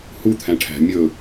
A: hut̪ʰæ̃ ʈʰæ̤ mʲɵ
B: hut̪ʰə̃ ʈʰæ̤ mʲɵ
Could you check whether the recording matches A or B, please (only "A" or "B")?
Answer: A